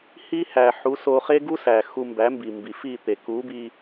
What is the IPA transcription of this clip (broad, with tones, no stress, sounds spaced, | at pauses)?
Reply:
h i˦ h æ˨ ħ u˨˦ s o˧ χ e˦ ɡ u˦ s æ˨ x u˧ m b æ˨˦ m b i˨ m b i˨ f i˦˨ t̪ e˨ k u˨˦ b i˧